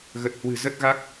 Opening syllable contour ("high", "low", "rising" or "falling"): low